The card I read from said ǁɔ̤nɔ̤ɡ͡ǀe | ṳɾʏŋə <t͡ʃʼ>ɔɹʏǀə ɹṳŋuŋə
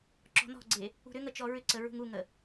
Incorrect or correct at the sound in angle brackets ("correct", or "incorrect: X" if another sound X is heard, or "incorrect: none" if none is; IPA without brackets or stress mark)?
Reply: incorrect: t͡ʃ